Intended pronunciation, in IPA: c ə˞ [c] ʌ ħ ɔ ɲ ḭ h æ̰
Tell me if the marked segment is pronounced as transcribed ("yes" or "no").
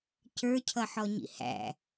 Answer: no